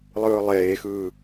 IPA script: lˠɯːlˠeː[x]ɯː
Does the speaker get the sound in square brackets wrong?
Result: no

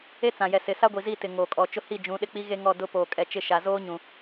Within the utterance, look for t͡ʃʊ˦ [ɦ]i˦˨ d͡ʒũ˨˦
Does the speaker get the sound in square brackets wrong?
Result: yes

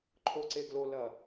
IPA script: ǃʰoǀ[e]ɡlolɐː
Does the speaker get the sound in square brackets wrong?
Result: no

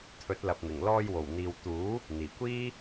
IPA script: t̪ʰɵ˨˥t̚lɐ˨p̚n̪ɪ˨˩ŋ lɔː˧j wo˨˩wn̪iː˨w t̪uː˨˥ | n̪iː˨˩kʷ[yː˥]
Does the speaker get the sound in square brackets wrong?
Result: yes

